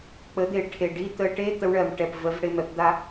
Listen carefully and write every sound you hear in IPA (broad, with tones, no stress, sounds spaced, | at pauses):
k͡p ə˨˦ d̪ e˨ ʈʰ e˨ ɖ i˦ t̪ ə˨ ʈ e˦ t̪ ə˦ w ɳ ɜ˨ m ʈ ɛ˨ p v ə˨˦ v ɽ e˨ m ɛ˨ p d̪ a˦